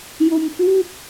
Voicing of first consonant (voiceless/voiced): voiced